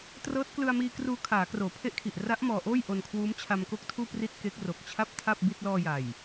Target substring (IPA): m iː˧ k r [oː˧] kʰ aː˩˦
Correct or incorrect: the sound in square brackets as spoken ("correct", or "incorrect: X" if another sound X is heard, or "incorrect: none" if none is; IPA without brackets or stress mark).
incorrect: uː˧